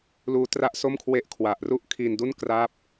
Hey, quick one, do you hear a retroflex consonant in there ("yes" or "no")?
no